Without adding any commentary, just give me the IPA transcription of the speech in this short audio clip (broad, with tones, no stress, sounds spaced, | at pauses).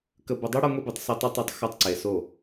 k ə˨ b ə˨ dˤ i˦ ɽ ɐ˦ ŋʷ i˦ b i˨ tˤ s e˦ tˤ a˦ tˤ o˦ tˤ x a˦ tˤ ǀ e˨ s o˦˨